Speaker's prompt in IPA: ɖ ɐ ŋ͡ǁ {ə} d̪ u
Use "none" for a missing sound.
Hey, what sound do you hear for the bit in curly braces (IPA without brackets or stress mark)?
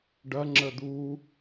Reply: ə